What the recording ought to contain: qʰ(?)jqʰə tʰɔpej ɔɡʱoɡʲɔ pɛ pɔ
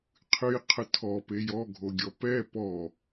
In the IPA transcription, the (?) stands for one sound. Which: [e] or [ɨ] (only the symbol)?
ɨ